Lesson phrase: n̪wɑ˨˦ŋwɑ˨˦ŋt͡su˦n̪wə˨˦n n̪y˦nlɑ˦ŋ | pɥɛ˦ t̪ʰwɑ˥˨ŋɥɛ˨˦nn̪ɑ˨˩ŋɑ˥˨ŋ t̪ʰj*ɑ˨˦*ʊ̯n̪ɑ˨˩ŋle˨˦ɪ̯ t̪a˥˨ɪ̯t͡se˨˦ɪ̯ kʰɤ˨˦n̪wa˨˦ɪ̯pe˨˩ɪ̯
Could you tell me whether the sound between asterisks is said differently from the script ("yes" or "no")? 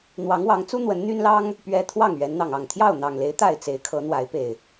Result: yes